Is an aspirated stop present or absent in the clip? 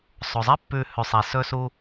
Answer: absent